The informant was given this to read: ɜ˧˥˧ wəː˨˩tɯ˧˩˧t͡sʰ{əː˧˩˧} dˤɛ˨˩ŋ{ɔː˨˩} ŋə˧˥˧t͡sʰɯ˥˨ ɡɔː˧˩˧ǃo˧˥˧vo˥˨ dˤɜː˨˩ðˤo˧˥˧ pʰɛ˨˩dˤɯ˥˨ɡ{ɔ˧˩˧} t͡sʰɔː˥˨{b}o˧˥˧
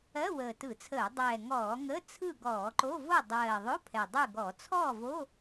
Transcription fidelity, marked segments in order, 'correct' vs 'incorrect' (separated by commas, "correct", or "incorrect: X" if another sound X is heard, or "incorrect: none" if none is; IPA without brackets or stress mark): correct, incorrect: ɔː˧˩˧, correct, incorrect: v